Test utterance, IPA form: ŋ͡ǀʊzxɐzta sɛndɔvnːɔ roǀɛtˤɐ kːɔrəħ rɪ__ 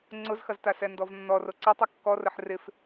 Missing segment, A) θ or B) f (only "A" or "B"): B